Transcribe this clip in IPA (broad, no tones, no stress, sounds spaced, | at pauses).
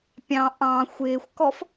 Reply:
pʲ ɑ̃ ʔ ɑ̃ xʷ ɪː xʷ k ɔ f